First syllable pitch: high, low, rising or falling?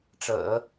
low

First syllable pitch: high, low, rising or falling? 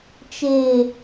low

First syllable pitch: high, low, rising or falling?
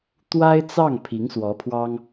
high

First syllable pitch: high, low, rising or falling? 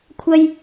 high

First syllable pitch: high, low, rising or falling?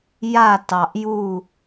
falling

